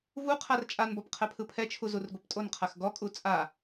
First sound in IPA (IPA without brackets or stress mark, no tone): v